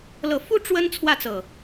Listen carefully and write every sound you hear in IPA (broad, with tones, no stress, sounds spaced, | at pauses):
l ɤ˨˩ f u˦ ʈ͡ʂ w ə˦ n t͡sʰ w ä˥˨ t͡s ɤ˨˩